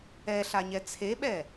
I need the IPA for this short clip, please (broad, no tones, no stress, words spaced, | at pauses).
ɛɬaɲɛ t͡sʰeɓɛ